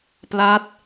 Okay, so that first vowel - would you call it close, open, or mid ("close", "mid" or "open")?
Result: open